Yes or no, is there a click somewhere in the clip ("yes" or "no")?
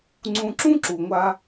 yes